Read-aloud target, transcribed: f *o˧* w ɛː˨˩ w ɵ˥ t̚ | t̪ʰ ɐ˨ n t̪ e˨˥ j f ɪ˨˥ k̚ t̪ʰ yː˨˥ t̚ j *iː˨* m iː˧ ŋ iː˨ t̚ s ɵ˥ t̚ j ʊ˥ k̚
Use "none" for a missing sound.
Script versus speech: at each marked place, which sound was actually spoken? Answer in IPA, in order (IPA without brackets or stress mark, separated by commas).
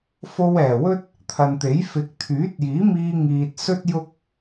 o˧, iː˨˥